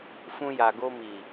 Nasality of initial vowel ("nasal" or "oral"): nasal